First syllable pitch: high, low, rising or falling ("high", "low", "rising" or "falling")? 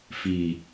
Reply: low